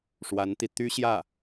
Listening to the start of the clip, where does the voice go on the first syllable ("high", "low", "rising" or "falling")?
rising